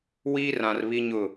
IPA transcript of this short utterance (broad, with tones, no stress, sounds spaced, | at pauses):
w iː˦ r ã˨ r β i˦ ɲ ʊ˦˨